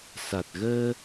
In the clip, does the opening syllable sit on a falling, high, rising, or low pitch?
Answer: low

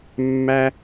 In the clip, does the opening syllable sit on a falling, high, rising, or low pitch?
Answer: high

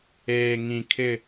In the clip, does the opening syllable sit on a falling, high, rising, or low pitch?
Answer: low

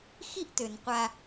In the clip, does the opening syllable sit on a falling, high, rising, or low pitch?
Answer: high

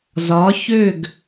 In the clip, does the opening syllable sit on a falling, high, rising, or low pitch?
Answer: rising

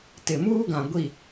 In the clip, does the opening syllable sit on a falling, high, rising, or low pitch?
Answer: low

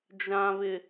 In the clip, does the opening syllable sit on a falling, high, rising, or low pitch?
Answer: low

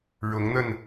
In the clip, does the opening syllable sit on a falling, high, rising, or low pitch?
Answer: rising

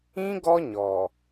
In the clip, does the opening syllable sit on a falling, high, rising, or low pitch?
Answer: high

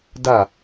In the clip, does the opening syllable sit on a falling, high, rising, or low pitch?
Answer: falling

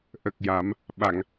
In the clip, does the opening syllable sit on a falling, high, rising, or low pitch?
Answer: low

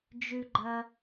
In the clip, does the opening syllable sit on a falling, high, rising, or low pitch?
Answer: high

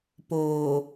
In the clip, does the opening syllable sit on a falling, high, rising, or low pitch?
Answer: low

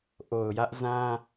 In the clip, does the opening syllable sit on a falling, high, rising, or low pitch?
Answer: low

